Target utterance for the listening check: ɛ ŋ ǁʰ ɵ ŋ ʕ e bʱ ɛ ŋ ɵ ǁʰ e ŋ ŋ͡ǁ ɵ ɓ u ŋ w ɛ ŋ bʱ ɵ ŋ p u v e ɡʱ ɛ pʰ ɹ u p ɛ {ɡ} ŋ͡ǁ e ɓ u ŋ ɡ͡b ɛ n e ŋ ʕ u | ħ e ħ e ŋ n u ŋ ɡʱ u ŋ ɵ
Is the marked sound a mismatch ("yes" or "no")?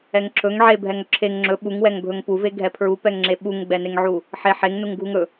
yes